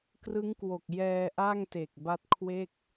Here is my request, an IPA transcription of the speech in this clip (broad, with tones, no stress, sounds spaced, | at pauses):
k r ɯ˦˥ ŋ k w o˨˩ k̚ j ɛː˧ ʔ a˥˩ ŋ t e˨˩ k̚ b a˦˥ t̚ kʰ w e˥˩ k̚